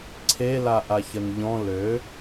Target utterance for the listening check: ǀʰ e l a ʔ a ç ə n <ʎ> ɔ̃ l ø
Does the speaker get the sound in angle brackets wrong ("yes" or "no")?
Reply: no